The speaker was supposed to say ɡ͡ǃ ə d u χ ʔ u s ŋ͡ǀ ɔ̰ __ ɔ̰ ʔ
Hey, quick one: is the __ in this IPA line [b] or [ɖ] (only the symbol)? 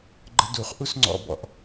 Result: b